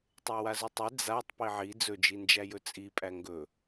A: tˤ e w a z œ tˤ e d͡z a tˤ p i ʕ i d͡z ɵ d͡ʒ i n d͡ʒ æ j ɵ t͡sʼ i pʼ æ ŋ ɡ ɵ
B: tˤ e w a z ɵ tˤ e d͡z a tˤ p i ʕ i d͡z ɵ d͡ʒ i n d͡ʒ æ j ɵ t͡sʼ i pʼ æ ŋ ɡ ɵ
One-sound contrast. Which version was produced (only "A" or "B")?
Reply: B